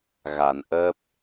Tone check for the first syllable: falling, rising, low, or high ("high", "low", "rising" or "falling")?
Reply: low